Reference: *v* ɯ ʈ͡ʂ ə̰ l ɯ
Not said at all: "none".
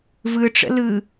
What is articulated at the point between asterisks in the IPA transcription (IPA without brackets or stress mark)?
v